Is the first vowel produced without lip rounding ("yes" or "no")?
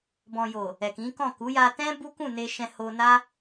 no